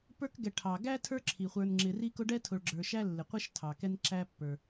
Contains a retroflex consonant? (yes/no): yes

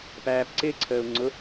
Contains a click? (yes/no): yes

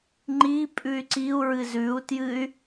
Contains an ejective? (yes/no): yes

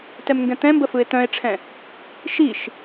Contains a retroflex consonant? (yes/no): yes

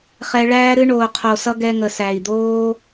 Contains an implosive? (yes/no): no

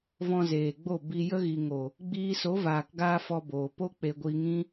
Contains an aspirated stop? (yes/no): no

